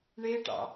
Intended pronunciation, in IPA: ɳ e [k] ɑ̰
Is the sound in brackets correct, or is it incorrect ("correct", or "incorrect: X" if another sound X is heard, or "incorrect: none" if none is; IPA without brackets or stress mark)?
incorrect: ʈ